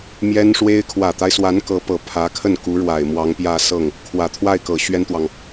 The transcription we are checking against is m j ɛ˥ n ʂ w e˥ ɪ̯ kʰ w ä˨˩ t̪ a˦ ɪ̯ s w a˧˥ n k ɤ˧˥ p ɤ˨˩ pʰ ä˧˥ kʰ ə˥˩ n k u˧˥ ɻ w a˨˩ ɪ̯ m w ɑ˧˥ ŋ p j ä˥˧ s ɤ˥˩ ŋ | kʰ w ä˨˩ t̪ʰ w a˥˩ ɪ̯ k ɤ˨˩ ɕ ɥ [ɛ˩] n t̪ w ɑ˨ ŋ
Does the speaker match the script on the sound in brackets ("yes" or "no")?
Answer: no